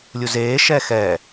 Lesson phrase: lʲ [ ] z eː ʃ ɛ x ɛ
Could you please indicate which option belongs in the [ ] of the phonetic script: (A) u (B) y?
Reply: A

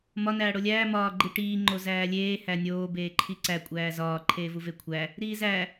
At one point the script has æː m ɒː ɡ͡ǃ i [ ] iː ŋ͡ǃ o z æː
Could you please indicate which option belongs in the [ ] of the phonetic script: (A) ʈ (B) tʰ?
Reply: A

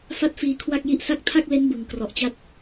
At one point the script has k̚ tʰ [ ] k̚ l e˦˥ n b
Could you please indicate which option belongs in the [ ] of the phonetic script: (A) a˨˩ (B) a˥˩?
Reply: B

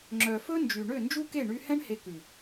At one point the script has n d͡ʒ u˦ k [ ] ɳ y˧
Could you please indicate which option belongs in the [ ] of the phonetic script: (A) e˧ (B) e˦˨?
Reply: B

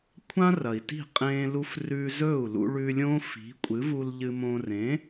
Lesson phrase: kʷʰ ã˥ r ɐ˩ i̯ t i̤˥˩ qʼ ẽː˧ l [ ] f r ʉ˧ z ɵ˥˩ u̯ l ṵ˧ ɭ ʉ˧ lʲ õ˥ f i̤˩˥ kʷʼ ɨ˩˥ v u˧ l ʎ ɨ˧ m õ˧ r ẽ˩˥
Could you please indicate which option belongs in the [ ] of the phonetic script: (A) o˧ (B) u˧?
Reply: B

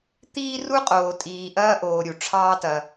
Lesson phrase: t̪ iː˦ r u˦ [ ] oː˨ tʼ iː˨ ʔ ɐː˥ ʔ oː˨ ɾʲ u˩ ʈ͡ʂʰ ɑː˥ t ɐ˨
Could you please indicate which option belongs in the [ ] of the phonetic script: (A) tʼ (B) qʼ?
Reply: B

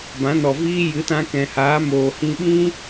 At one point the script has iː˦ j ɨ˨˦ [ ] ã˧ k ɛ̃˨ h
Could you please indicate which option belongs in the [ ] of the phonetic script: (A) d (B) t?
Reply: B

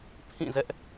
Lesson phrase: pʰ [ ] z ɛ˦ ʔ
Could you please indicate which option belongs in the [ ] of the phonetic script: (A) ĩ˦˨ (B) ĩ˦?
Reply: A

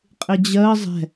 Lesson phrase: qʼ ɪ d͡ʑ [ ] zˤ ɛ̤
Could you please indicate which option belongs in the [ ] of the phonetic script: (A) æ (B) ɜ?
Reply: B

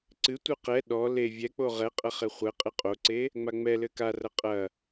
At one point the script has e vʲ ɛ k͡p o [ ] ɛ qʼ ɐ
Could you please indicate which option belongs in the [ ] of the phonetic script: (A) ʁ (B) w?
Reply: A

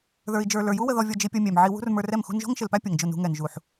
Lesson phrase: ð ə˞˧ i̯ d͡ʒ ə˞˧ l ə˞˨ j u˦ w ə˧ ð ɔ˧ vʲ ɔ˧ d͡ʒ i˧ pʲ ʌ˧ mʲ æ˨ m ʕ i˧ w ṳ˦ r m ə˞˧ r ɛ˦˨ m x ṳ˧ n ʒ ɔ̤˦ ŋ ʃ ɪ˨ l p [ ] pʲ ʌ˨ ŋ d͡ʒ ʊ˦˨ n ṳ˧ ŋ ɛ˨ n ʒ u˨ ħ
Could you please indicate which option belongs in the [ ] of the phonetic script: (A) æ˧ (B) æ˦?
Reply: B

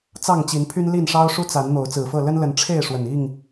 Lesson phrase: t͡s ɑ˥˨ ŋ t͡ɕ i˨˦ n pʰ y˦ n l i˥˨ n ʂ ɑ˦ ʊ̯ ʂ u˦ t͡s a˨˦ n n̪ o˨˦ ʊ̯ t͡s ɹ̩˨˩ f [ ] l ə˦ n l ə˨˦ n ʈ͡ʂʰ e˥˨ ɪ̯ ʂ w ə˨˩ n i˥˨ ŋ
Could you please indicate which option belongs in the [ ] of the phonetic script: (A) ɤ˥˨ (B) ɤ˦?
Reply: A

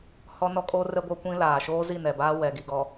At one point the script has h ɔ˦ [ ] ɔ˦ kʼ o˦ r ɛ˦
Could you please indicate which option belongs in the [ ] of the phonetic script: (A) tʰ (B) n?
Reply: B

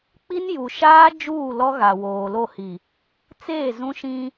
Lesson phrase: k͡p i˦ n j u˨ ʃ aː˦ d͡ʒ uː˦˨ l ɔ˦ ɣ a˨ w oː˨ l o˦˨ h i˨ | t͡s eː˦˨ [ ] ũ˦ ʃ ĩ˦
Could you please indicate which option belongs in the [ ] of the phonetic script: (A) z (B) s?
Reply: A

